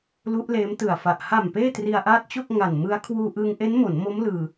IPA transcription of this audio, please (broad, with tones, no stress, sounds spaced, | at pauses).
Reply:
l u˦˥ ʔ l eː˦˥ m t ɯ˨˩ a̯ f a˨˩ ʔ h a˨˩ m p eː˥˩ t r i˧ a̯ ʔ aː˦˥ t̚ t͡ɕ o˥˩ k̚ ŋ a˨˩ n m ɯ˦˥ a̯ kʰ w uː˧ ʔ ɯː˧ ŋ ʔ e˦˥ n m o˩˦ n m o˦˥ m l ɯː˧